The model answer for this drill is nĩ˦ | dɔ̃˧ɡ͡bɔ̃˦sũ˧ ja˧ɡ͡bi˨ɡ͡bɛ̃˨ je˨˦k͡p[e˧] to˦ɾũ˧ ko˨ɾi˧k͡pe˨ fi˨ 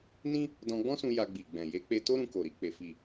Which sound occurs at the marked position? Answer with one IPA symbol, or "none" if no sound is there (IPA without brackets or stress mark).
e˧